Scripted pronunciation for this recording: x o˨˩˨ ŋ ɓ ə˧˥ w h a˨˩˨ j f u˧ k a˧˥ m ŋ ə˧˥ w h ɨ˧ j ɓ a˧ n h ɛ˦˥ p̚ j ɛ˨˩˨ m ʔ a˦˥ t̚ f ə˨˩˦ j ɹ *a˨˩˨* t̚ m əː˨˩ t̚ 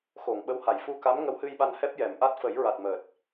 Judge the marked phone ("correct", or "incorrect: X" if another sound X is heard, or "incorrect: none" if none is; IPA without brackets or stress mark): incorrect: a˨˩